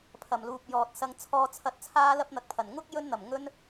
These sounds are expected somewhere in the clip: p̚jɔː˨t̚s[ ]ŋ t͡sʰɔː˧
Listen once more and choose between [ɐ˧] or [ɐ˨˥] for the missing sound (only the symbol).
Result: ɐ˧